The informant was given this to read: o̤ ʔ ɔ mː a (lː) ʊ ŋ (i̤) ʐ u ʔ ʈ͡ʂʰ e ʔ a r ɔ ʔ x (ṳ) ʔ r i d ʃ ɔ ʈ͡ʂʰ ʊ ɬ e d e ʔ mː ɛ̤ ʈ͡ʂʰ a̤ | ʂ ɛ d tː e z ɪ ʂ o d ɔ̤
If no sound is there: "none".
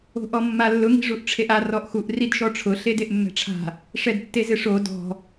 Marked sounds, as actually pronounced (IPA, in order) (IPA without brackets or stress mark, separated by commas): lː, i̤, u